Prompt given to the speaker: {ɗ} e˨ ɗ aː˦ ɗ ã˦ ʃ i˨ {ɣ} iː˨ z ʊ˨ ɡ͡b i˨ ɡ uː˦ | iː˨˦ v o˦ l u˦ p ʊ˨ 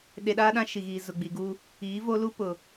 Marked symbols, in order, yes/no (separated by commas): yes, yes